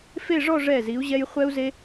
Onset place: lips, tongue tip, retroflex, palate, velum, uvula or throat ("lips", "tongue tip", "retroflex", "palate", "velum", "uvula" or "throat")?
lips